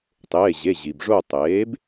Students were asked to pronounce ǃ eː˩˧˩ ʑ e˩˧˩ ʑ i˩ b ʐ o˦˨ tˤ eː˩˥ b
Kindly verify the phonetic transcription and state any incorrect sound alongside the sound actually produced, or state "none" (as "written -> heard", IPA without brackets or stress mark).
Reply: ǃ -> tˤ